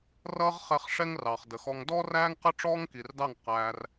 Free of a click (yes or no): yes